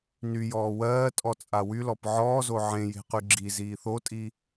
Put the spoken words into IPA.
nyjɔː wɜːtʼɔt͡sʼa wylɔp ʕɔːzo ʕẽje̤qy ɡ͡ǁiziː θotʼi

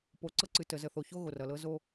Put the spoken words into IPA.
po˨ǀɤ˦ǀɨ˨ tə˨zə˨θo˨ ço˦ɣo˨rʌ˨lɤ˦ zo˦

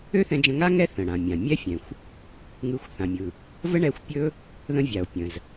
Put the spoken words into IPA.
ø˥θɛ̃˧d͡ʒə̃˧ŋa˥ ŋɛ˥θə̃˩ɽã˩mʲã˩ mʲɛ˥fʲɛ̃˩xʷ | ŋɯ˧xʷθã˩mʲɯ˩ | və˥ɳɛ˧xʷ pʲɵ˥ | ðə̃˧vʲa˩o̯ pʲə̃˩z

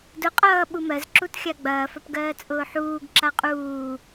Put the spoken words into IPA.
dʊ qʼʌː ɓumɜz ǁutxʲaɡ͡bɐː fɐpɡɜːt͡sʼʊːħuːɡ ǁaqʼuː

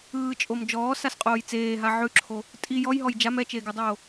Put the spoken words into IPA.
ɯːt͡ʃʼom d͡ʒɔːsasqʼoːj t͡seːɦa ʕʉǁʰo | tʼi jɔjɦɔj d͡ʒam ɛt͡ʃeːɡʉdˤoː

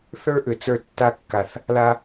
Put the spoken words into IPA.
θə˞˥ʔʏ˩t͡sə˞˧ tːa˧kːa˩θ | la˧

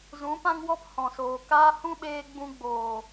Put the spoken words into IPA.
zũ˨˦pã˦ŋwɔ˦p hɔ̃˨soː˨kaː˦ hũ˦ɓeː˧ ɡ͡bũ˧ɡ͡boː˨

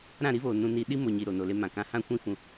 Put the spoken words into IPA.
ɾã˦˨ɾi˦voː˨ nũ˧ ni˧ ɗi˦mo˨ɲi˨ ɾo˨no˨le˧ mã˨kã˦ hã˦kʷĩ˦ fũ˧

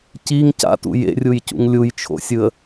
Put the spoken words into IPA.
ciŋ ca̰tṵ jḛrʲujcṵŋ lʲujt͡ʃʰo̰sʲɯə̯

